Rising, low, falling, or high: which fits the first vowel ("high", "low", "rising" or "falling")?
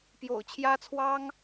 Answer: low